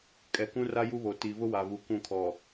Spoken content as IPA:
kʼɛ˨kũ˦ra˦ ju˦βo˨ ti˨ vʊ˦wa˨vu˨ kũ˦˨ kʰɔ˨

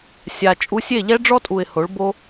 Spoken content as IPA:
sʲa˧ t͡ʃʼu˧sʲe˦˨ ʎɛ˦ɖ͡ʐɔ˦tʼu˨ɪ̯ ho˨˦ɭbo˦

